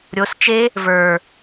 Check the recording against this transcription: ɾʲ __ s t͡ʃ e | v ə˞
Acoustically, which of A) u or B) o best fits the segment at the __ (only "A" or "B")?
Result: B